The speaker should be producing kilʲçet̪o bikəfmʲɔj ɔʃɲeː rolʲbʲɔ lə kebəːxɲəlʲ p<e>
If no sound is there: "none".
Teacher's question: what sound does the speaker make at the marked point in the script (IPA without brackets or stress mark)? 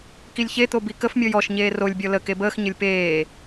eː